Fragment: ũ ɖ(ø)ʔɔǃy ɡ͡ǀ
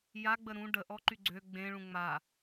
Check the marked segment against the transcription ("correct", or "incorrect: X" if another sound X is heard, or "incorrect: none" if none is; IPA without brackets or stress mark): incorrect: ə